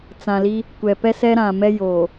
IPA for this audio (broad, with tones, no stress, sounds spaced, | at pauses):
t͡s ã˨ l i˦ | kʷ ɛ˨ p ɛ˦ s ɛ˦ ɾ ã˨ m ɛ˦ j oː˨